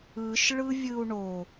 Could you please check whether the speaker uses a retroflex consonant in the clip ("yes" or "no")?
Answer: yes